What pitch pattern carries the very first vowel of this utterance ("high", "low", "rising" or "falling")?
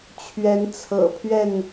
rising